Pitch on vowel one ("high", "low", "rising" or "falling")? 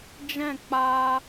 falling